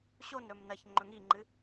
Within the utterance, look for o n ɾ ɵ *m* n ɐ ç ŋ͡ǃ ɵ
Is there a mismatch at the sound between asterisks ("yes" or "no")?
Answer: no